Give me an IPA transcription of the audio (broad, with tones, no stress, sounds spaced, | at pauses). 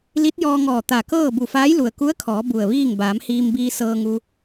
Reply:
l i˧˥ t̚ j ɔː˧ ŋ ɔː˧˩ t̪ a˧˩ k ɤː˥˨ b u˧˩ f aː˧˥ j l u˩ ə̯ k u˧˥ ə̯ kʰ ɔː˩˧ b u˧˩ ə̯ ʋ iː˥˨ ŋ b aː˩˧ m h iː˧ m b iː˧ s ɤː˧ ŋ u˧